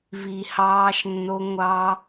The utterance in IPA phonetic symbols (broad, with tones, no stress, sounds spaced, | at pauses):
v i˨ h ɑː˦˥ ʃ nː o˦˥ ŋʷ ɑ˦˥